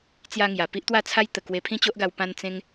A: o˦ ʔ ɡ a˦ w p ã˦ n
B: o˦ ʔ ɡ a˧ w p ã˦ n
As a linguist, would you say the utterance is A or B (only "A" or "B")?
B